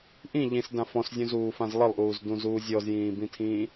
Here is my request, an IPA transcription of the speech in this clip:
ʔ ĩ ʎ ĩ s d ã f ɔ̃ s zʲ ũ z uː f ã z lˠ ə lˠ ʔ uː z d ũ z uː zʲ ɔ z j ĩː b ĩ tʰ ĩː

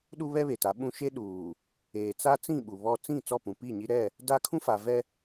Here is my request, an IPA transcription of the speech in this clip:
ɗ u˦ β ɛ˦ β e˨ t a˨˦ ɓ ũ˦ ʃ e˦ ɗ uː˨ | eː˨ t͡s a˦ t͡s ĩ˦˨ ɓ u˨ β ɔ˦ t͡s ĩ˦˨ t͡s ɔ˦˨ p ũ˨ p i˦˨ ɲ i˦ ɾ ɛ˦˨ | d a˦ kʰ ũ˦ f a˨ v ɛ˦

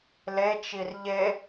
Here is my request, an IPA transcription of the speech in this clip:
l e t͡ʃ i r ʎ e

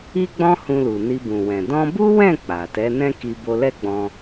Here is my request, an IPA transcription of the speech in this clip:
i˦ ɡ͡b ɔ̃˦ h ũ˧ l u˨ n i˧ b ũ˨ w ɛ̃˨ d ɔ̃˧ b u˦ w ɛ̃˦˨ k͡p a˨ t ɛ˨˦ n ɛ̃˦ k i˧ b o˧ l ɛ˦ ɡ͡b ɔ̃˧

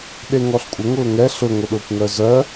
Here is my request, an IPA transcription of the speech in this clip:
ɗ e ŋ ɔ ɬ kʷʼ ə ŋ ʊː ŋ ɛ ɬ ʊ ŋʷ ə ɗ ʊː kʷ ŋ œ z œ

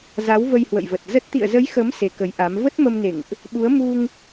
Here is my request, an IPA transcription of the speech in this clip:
z a˨˦ w v ə˧ j h w ə̰˧˨ j v ə˨˩ t̚ z ə˦˥ t̚ t̪ ḭ˧˨ ə̯ z ə˨˦ j x ə˨˦ m s e˨˦ k ə˨˦ j ʔ a˨˦ m v ə˦˥ t̚ m ə˧ m n ḛ˧˨ ŋ ʔ | ɓ u˨˦ ə̯ m u˧ ŋ

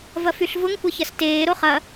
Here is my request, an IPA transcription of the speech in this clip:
v ɐ f y ɬ v ʊ ŋ kʷ ɐ ç ɐ s t eː ɾ o χ ɐ

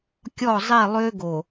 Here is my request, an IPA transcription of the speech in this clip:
kʲ ɔ˦˨ zˤ i˦˨ lˠ ø˦ ɡ o˨

